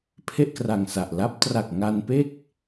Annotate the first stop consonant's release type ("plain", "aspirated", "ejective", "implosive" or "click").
aspirated